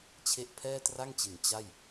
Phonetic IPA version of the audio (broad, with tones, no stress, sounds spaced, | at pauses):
t͡ɕʰ e˥˩ ʔ pʰ ɛː˥˩ t r a˥˩ ŋ t͡ɕ i˩˦ n t͡ɕ a˥˩ j